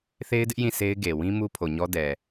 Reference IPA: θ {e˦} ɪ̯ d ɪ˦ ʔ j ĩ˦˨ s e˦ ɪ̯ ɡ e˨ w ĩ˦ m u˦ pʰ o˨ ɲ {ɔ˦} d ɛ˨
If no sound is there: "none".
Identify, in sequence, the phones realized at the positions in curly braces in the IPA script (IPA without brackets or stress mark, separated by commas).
e˦, ɔ˦